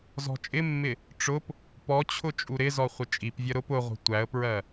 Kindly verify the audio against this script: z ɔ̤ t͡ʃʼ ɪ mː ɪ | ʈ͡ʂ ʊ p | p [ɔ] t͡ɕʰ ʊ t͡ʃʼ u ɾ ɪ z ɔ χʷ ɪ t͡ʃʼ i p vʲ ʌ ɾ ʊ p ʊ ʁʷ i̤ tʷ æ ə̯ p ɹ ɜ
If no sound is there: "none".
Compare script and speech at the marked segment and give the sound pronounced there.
ɔ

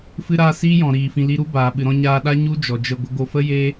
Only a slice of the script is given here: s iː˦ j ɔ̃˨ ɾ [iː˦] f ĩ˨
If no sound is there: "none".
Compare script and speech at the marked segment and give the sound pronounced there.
iː˨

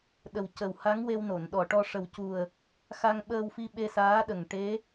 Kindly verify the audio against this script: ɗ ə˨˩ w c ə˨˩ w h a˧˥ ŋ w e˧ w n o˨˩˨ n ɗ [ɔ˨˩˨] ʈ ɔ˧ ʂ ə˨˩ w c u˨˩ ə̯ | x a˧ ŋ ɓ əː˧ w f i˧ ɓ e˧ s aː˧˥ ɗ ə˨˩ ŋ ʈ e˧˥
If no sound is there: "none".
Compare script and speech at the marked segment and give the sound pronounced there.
ɔ˨˩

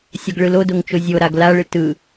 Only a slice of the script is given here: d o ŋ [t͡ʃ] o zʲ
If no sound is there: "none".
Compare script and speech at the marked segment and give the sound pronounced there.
t͡ʃ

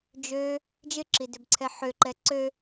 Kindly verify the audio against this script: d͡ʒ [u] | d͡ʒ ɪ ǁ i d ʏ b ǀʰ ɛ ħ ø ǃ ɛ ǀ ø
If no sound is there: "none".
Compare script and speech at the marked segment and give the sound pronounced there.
ø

